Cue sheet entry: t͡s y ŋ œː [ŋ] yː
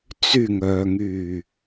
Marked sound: correct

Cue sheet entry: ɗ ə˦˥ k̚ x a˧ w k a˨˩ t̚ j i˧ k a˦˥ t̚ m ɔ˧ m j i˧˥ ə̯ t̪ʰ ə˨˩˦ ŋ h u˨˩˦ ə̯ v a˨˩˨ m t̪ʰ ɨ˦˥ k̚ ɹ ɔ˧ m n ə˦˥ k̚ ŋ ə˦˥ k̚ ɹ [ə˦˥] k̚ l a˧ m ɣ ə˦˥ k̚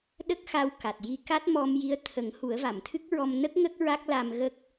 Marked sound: incorrect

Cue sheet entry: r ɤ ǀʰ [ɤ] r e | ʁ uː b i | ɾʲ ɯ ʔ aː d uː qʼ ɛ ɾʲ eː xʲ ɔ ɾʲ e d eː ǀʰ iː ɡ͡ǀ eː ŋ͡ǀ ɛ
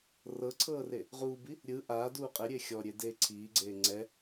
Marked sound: incorrect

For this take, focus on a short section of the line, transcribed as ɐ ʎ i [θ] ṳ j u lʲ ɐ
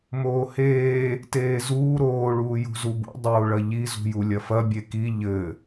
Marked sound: incorrect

